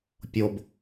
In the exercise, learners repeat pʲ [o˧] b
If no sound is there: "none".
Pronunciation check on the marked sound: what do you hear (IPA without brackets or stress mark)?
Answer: o˧